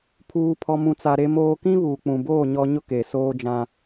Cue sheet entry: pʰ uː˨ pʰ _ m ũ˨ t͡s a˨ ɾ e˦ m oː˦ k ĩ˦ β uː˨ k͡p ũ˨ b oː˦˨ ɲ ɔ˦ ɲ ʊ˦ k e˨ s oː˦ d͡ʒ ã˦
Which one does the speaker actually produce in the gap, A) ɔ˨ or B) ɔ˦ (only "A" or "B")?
A